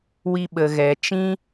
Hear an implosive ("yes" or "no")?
yes